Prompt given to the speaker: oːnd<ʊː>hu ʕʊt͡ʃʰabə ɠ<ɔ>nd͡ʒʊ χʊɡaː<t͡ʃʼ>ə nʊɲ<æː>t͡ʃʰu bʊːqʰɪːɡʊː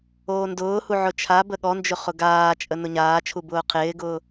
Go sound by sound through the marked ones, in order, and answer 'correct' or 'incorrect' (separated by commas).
correct, correct, correct, incorrect